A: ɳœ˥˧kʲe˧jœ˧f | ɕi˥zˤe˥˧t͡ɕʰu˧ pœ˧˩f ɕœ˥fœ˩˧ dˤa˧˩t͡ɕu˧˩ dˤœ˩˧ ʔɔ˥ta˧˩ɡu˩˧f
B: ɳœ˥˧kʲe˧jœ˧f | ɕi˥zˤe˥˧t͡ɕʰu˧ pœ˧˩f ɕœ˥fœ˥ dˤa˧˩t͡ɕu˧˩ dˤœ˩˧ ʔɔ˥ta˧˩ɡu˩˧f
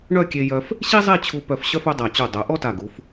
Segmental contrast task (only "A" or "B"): B